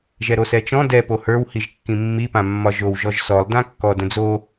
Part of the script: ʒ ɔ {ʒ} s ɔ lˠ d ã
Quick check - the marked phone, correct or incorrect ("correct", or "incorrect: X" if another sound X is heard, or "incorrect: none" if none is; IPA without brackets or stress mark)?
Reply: correct